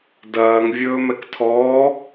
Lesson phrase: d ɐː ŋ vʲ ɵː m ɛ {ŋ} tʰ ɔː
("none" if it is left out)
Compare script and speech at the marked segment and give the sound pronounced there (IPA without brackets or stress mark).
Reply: k